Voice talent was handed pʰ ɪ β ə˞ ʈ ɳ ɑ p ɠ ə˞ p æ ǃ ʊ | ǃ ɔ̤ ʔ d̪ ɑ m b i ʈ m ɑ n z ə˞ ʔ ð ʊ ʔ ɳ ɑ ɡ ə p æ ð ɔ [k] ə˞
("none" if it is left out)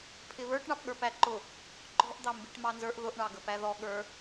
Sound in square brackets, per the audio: ɠ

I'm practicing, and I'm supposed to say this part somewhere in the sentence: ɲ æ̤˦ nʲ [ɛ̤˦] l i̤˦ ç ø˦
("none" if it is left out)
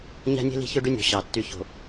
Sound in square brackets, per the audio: e̤˦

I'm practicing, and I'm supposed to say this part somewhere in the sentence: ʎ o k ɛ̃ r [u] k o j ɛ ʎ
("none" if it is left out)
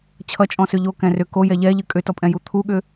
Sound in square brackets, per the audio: ʏ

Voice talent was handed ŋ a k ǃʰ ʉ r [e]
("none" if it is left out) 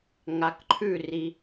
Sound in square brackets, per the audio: i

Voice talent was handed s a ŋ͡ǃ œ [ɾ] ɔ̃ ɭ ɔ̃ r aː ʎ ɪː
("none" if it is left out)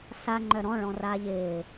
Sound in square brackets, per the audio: ɾ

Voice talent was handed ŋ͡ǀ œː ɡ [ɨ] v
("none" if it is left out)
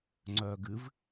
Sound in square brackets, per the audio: ɨ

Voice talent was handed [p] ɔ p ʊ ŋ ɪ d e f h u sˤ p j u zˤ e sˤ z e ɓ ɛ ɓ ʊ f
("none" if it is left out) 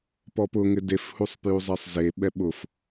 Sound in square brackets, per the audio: p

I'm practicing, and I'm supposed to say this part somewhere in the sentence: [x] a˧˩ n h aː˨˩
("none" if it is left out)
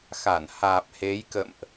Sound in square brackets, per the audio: x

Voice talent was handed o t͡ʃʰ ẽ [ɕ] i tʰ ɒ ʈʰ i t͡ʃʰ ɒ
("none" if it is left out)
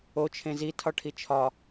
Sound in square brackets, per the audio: z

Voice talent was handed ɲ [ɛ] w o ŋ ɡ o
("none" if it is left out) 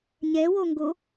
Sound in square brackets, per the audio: ɛ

